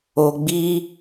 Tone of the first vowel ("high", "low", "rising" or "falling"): low